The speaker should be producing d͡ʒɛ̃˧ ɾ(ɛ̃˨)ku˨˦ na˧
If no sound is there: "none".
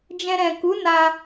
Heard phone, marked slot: ɛ̃˨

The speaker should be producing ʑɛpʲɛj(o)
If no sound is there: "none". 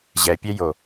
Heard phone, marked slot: o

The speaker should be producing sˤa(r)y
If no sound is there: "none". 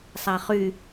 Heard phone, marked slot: χ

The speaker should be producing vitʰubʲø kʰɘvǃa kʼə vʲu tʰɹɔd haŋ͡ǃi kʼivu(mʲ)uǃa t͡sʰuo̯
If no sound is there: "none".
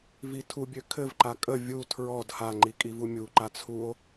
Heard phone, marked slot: mʲ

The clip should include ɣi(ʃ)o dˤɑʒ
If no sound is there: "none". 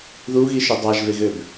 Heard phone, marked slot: ʃ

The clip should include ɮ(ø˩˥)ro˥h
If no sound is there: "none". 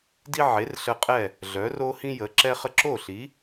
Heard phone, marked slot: œ˩˥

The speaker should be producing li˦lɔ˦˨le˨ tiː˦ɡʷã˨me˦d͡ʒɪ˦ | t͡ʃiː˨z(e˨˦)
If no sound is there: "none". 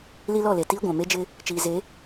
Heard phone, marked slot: e˨˦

